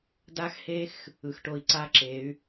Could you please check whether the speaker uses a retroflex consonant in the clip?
yes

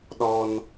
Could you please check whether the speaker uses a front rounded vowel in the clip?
no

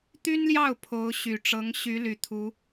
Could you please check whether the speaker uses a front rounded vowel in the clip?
yes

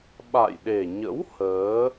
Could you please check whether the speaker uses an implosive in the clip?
yes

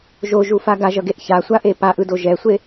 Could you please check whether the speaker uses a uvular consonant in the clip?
no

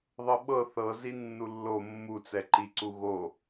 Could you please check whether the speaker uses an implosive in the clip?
yes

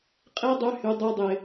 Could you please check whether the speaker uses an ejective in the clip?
yes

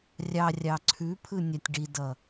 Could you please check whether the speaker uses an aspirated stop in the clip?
yes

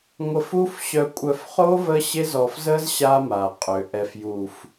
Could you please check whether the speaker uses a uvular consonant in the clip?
yes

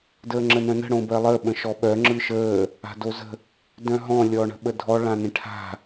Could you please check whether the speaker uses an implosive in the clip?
yes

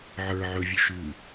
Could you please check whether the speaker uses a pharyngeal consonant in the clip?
yes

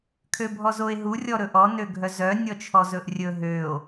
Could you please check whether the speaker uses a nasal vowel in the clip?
no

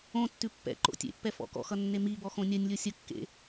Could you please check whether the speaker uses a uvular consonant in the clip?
no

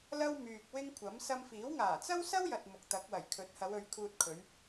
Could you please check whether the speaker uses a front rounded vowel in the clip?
yes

